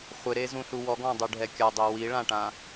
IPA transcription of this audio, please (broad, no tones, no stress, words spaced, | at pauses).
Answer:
χʷɪɾezũɬu wɔɡɔ̃dˤuɖʱɛ kʲadˤe wiɭãʈã